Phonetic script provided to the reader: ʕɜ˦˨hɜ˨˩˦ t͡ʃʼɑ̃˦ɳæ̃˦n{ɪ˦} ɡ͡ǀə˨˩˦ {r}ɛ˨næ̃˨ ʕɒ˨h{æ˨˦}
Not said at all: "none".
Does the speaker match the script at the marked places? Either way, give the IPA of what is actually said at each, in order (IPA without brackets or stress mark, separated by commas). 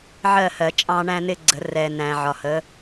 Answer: ɪ˦, r, ə˨˦